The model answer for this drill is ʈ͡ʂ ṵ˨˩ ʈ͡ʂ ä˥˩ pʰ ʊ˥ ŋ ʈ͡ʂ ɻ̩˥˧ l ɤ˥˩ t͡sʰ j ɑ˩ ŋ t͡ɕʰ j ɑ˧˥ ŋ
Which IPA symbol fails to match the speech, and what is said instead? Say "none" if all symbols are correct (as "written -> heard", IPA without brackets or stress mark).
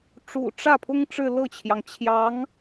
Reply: t͡sʰ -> t͡ɕʰ